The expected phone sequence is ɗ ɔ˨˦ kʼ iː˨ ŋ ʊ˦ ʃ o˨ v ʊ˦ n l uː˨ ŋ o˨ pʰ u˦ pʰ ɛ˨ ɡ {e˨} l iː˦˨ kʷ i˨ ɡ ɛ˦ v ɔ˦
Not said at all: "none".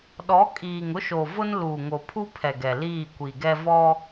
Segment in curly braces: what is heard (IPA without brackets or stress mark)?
ɛ˨